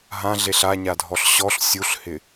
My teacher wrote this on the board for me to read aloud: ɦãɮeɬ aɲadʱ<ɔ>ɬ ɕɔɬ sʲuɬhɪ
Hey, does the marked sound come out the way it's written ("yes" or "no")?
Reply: yes